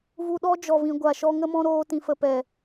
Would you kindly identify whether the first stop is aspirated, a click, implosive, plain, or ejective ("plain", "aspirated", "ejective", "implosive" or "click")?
implosive